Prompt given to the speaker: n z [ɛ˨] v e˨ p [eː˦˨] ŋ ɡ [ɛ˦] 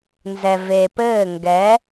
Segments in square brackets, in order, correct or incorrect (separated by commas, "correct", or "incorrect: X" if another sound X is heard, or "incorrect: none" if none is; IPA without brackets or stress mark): correct, incorrect: ɘː˦˨, incorrect: ɛ˨˦